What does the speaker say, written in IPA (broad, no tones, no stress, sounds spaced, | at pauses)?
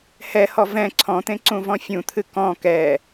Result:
h ɛ h ɔ v ɛ̃ ǀʰ ɔ̃ t̪ ẽ ǀ ũ v ɔ̃ fʲ ũ t̪ʰ ɨ k ɔ̃ k ɛ